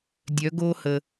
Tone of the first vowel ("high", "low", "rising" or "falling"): rising